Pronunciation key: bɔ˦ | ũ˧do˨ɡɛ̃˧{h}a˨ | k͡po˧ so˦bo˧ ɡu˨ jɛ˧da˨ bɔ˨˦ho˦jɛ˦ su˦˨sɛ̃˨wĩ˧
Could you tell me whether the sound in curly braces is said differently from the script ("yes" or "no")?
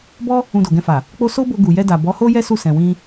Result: yes